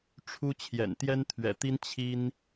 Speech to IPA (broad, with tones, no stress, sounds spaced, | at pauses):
ʈ͡ʂʰ u˥ t͡ɕʰ j ɛ̰˨˩ n t̪ j ɛ˥ n t̪ʰ ɥ ɛ̰˨˩ t̪ i˥ n t͡ɕʰ i˥ n